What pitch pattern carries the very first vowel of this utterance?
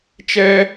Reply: high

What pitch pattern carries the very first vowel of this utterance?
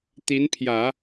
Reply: rising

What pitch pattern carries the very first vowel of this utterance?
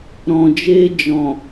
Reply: low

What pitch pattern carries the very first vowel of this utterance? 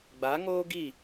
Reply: rising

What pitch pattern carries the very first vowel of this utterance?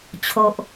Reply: low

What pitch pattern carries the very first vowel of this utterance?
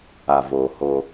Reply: low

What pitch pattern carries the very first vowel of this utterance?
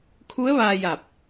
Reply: rising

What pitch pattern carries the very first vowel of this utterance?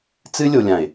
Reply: high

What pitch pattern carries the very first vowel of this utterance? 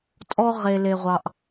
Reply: high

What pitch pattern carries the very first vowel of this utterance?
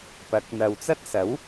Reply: rising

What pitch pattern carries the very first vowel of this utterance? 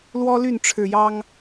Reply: high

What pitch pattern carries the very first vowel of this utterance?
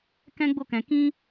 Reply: high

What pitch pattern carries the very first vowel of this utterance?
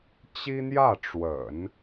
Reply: high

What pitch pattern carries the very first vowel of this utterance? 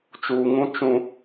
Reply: low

